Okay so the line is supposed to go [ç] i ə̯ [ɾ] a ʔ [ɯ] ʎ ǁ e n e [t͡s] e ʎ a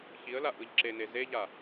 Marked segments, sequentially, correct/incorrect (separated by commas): correct, incorrect, correct, incorrect